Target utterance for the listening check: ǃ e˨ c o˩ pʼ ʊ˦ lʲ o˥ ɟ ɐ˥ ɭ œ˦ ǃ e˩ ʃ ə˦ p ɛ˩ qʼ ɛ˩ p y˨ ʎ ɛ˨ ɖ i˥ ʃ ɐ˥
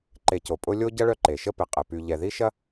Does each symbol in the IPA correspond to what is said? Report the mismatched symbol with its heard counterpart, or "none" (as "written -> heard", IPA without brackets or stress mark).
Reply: ɖ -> ð